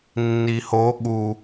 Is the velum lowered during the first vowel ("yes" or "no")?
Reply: no